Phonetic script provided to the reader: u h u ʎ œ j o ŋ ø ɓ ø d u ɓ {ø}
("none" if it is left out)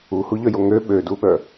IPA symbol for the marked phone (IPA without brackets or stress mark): œ